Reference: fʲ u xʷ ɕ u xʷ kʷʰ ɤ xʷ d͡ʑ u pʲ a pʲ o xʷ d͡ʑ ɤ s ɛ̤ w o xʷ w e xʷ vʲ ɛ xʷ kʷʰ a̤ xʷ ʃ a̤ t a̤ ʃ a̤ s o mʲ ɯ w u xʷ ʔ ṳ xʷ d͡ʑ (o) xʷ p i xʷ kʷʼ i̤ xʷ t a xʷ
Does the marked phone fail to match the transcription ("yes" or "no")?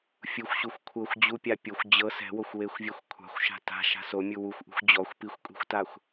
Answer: yes